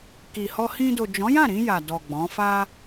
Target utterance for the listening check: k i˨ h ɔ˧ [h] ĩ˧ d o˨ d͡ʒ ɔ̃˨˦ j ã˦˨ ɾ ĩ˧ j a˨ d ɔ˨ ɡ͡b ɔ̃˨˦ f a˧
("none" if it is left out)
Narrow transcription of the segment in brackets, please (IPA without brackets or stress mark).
h